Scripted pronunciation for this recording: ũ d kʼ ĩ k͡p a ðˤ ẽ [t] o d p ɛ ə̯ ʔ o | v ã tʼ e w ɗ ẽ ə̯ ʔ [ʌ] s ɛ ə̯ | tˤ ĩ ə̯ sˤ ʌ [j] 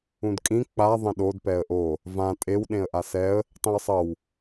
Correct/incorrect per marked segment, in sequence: incorrect: ɗ, incorrect: a, incorrect: w

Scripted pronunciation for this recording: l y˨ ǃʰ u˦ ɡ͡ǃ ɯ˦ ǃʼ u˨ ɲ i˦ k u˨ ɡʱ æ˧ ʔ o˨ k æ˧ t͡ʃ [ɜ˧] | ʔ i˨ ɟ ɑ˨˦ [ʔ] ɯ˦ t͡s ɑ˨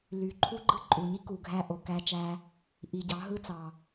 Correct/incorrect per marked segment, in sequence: incorrect: æ˧, incorrect: ɦ

